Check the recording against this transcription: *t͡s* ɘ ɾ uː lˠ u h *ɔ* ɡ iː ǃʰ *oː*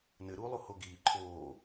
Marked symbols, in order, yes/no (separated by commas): no, no, yes